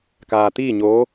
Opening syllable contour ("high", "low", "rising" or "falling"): low